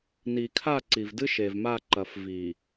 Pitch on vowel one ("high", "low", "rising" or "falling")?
low